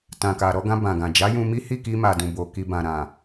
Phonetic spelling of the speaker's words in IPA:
t ã˨ k a˨ ɾ ɔ˧ ɡ ã˧ b ã˨ ɡ ã˨ d͡ʒ a˨˦ j ũ˧ m i˦ h i˦˨ k i˧ m a˨ d ũ˨ b o˨ k i˨ b ã˨ ɾ ã˨

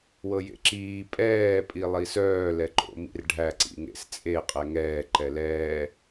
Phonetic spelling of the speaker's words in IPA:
w ɤ j ḛ ǁ iː pʼ ɛː pʼ i lˠ i s œː l ɛ ǃ o̰ m ḭ r ɖʱ æ ǀ ḭ ŋ ḛ s t͡sʼ e qʼ ɛ ŋ ɛː ǃ ɛ l ɛː

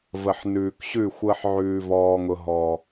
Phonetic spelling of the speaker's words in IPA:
v ə˨ ħ n ʉː˨ k ɕ ʉ˦˨ xʷ əː˦ ħ ʕ ʉː˦ v ɔː˦ ŋ ʊ˦ ɦ ɔ˦

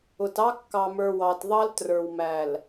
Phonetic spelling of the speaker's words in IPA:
ʊ˨ t ɑ˦ kː ɑ˨ m ə˞˨ w ɑ˨ t ðˤ ɑ˦ l t r ə˞˨ w m æ˨ l

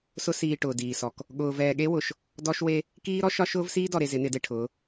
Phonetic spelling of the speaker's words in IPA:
s ʊ˦ s iː˨ ʈ ʊː˨ d iː˨ s ɔ˨ k | ɠ ʊː˨ v ɛː˨ ɠ e˦ w ʊ˨ ʃ | d ɔ˦ ʃ w e˦ | k iː˦ ɾ ɔ˦ ʃ ɒ˦ ʃ ʊː˦ v s iː˦ d ɔ˨ ɾ e˨ z ɪ˨˦ n ɪ˨˦ d e˨ ʈʰ ʊː˨˦

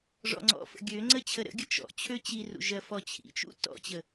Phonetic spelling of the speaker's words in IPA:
ʐ ɔ̰ ŋ͡ǀ ɔ̰ f ə̰ ɡʲ ø ŋ͡ǀ ə t͡ɕʰ ə ɾ ə̰ ɡʲ ə t͡ʃ ɔ̰ t͡ɕʰ ø t͡ɕ i r ṵ ʒ ɜ f ɔ t͡ɕʰ ḭ t͡ʃ ṵ t ɔ̰ t͡ɕ ə

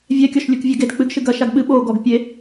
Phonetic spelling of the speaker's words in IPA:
vʲ ɛ kʲ ɔ ʃ lʲ u k vʲ ɛ ɡ e d k͡p ɨ ɡ ʃ ɨ ɡ ɐ ʃ a ɡ ɓ ɨ ɓ o ɡ ɔ ɡ pʲ e

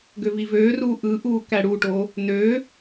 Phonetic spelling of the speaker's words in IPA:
ɡ ø v i v øː r uː ʔ ɯ ʔ uː k æ ɽ u ʈ o | n ø

